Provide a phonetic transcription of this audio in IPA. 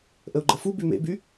ʔ ə o̯ ɡ͡ǃ ə f u b y m ḛ b y

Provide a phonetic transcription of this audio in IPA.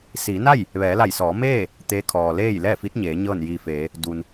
s iː˩˧ n a˥˨ j | ʋ ɛː˩˧ l a˧˩ j s ɔː˩˧ m eː˥˨ | t̪ eː˧˥ kʰ ɔː˩ l eː˥˨ j l ɛː˥˨ f i˧˥ t̚ ɲ eː˩˧ ɲ ɤː˥˨ n j iː˧ f eː˩˧ | d u˩ n

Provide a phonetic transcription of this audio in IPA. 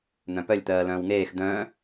n̪ œ̃ p œ lʲ t̪ ɜː l œ̃ː w ŋ eː x d̪ œ̃ː

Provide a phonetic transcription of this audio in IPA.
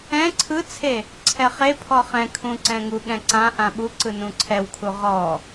ɛ̃ ǀʰ ɯ t͡sʰ e | ǀʰ ɛ χ e pʰ ɔ χ ɛ̃ kʰ ũ ǀ ɛ̃ ŋ u ɠ ɛ̃ ǀ ã ʔ ã ɓ u ǀ ɯ n ũ ǀʰ ɛ w kʰ u ʁ ɔ

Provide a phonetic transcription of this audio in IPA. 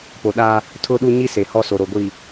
p o˨ ɗ a˦ | tʰ ʊ˦ ɗ u˦ ɲ i˦ s e˨ h ɔ˦ s o˨ ɾ o˨ ɡʷ i˨

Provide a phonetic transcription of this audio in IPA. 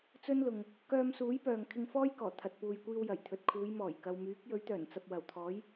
t͡s ɵ˥ n l ʊ˨ ŋ | k œː˧ m s uː˨˥ j p œː˨ ŋ kʰ ɪ˧ ŋ f ɔː˥ j k ɔː˨˩ t̪ʰ ɐ˨ t̚ p uː˨ j kʷ iː˧ w j ɐ˨˩ j t̪ʰ ɵ˨ t̚ kʰ uː˨˧ j m ɔː˨˩ j k ɐ˨ w m yː˨˥ k̚ j ɵ˨˥ ɥ t̪ œː˨˩ n t͡s ɐ˨ p̚ w ɐ˨˩ w t̪ʰ ɔː˨˥ j

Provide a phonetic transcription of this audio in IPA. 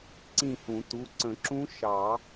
ǀ ĩ˥˧ h ũ˨˩˦ t u˩˧˩ ǀ ə̃˨˩˦ ǁ ũ˦˥ ʃ ɑ˨˩˦

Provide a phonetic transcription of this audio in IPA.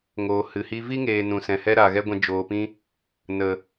ŋ oː˨ h ɨ˨ h i˦ v i˦ ŋ eː˨ n ũ˨ s ɛ̃˨ h ɛ˦ ɾ a˨ ɣ ɛ˦ ɡʷ ɛ̃˧ d͡ʒ oː˨ p ĩ˦ | n ə˨

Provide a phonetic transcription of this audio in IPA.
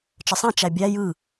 t͡ʃ ə sˤ ɛ̃ t͡ʃ æ bʲ æ j ɯ

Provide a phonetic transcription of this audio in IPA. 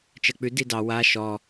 t͡ʃ ɜ k͡p ʉ d i d ɑ w a ʃ ɔ

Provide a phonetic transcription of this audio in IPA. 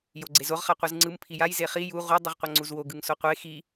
j o ɡ͡ǀ e z o ʁ χ a qʷ ɯ z ŋ͡ǀ ɯ m pʰ i j a j z e χ i j u ʁ u dˤ ɯ ʁ qʷ ʌ ŋ͡ǀ u z w o ɡ ɯ ŋ s o qʷ e x i

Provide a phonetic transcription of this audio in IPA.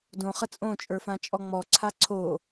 d õ χ ə t͡sʼ õ t͡ʃʼ ə˞ f ã t͡ʃʼ ɔ ŋ͡m ɔ ǀʰ a ǀʰ o

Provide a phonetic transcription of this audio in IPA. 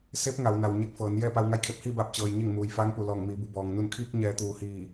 s e˧˥ p̚ ŋ a˩˧ w n a˩ w ɲ e˧ k̚ f ɤː˩˧ n j ɛː˥˨ p a˧ w ŋ a˧ j kʰ e˧˩ p̚ h iː˥˨ b aː˧˩ p̚ t͡ɕ ɤː˧ j ɲ e˥˨ ŋ m uː˩ j f aː˧˥ ŋ p u˩ l ɔː˧˩ ŋ m iː˩˧ b u˩˧ b ɔː˩ ŋ n u˧˩ n kʰ iː˧ k̚ ɲ ɛː˩˧ t̪ uː˩ h iː˧˩

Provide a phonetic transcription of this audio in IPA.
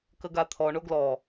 k ə ɡ a t̪ʰ ɔ ɳ o ɡ l ɔ

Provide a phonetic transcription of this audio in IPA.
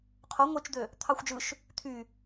qʰ o ŋʷ e t͡ʃ d̪ ø | t̪ʰ ɑ xʷ d͡ʒ ɯ ʃ | t̪ʰ y

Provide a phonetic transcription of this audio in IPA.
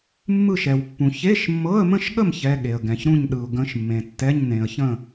mː ɯ˥˨ ʃ ɛ˨ w pː ũ˨ ç e˧˥˧ ʃ mː ɤ˧˥˧ ə̯ m ə̃˥˨ ʃ ɠ ə˥˨ m ç ɛ˧˥˧ ɠ e˨ ə̯ ɡ ɛ̃˨ ç ɾ ũ˥˨ ɲ ɗ ɯ˨ ʊ̯ ɡ ə̃˧˥˧ ʃ mː ẽ˨ tː ɛ˧˥˧ ɲ n ẽ˨ ə̯ ç ə̃˥˨

